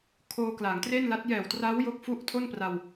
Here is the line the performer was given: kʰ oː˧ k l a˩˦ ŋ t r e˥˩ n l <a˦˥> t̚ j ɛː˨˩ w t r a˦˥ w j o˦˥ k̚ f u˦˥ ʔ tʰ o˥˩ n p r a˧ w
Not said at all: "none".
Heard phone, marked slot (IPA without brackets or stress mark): a˦˥